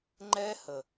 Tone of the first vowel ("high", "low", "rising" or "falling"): high